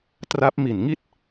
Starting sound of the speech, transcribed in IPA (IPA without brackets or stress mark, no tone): t